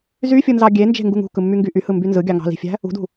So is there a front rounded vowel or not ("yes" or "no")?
yes